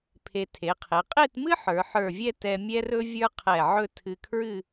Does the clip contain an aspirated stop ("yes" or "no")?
yes